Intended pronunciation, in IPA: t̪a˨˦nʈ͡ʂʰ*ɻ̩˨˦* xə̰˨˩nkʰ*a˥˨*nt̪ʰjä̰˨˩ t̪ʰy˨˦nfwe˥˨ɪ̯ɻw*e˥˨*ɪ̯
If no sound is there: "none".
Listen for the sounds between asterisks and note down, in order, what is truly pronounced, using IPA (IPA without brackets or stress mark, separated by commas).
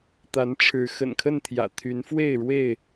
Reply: ɻ̩˨˦, ə˥˨, e˥˨